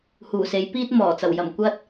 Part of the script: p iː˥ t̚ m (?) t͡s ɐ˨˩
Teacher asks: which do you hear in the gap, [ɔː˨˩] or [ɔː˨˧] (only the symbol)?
ɔː˨˩